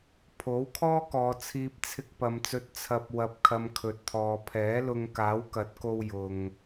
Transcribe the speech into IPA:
pʰ o˨˥ w kʰ ɔː˥ k ɔː˨˧ t͡sʰ iː˧ p̚ t͡sʰ ɪ˧ k̚ p ɐ˨ m t͡s ɵ˨˥ t̚ t͡sʰ ɐ˨ p̚ w ɐ˨ p̚ kʰ ɐ˨ m kʰ ɵ˨ t̚ t̪ʰ ɔː˨ pʰ ɛː˨˥ l ʊ˧ ŋ k aː˨˥ w k ɐ˨˥ t̚ k o˧ w j ʊ˨ ŋ

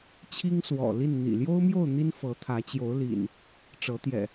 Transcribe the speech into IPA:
t͡ɕʰ i˦ ŋ s w ɔ̰˨˩ l i˥˨ n n̪ ḭ˨˩ l j o˦ ʊ̯ m j o˥˨ ʊ̯ n̪ i˦ n f ɤ˨˦ t̪ʰ ä˨˦ t͡ɕ j o˨˦ ʊ̯ l ḭ˨˩ n | ʈ͡ʂ ɤ˨˦ t̪ j ɛ̰˨˩

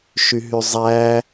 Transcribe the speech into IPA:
ʃ y ɦ y zˤ æ

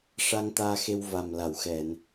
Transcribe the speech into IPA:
ʂ a˧ ŋ t̪ aː˧ x e˧ w v a˨˩ m l a˨˩˨ w x ɛ˨˩˨ n

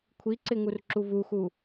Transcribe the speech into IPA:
kʷʰ i ǀ ɪ ŋ u r ǁ u v u x u

